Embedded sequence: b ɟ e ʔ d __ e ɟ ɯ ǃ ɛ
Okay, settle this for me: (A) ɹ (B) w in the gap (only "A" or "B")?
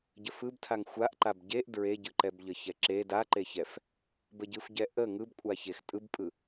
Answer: A